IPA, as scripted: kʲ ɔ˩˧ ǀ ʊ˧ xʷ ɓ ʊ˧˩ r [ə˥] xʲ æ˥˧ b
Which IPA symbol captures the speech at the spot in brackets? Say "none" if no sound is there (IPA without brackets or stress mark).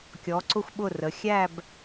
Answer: ə˩˧